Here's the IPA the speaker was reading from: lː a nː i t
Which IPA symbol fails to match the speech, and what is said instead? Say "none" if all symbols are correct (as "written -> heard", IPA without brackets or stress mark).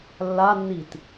none